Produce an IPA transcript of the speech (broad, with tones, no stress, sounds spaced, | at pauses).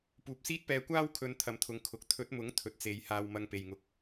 p uː˨ p̚ s iː˥ t̚ p ɛː˧ kʷ aː˥ w kʰ ɵ˨˧ n t̪ʰ ɐ˨ m t̪ʰ ʊ˨˧ ŋ kʰ ʊ˨˥ k̚ t̪ʰ ɵ˨˥ t̚ m ʊ˨˥ ŋ t̪ʰ ɵ˨ t̚ t͡s e˨˧ j h aː˧ w m ɐ˧ ŋ p e˨ j ŋ ʊ˨ k̚